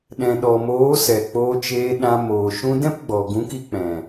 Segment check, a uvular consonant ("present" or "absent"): absent